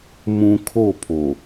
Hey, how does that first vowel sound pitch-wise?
low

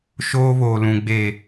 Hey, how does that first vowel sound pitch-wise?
high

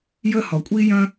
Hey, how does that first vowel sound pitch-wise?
high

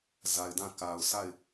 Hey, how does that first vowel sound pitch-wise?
low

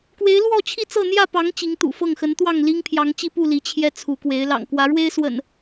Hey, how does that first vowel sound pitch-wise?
rising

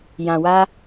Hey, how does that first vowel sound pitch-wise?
low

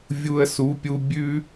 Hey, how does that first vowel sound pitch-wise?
high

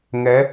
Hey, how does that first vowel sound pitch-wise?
rising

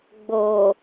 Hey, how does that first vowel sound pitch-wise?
low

